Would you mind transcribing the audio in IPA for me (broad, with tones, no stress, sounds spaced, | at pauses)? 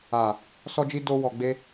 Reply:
a˨ | s ɔ˧ d͡ʒ i˧ d o˧ w ɔ˨ ɡ͡b e˧